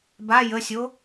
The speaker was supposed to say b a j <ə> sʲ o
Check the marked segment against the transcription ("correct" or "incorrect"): correct